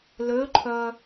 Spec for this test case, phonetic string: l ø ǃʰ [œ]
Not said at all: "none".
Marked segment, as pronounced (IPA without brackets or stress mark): œ